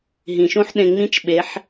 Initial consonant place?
glottal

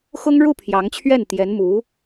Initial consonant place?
velar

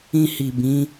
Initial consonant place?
glottal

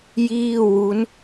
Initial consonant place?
palatal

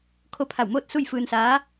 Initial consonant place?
velar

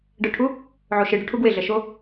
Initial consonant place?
retroflex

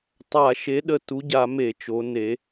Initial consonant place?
alveolar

